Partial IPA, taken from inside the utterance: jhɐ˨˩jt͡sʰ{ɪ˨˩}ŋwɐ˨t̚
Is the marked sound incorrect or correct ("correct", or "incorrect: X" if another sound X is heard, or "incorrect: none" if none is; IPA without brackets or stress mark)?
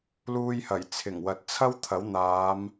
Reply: correct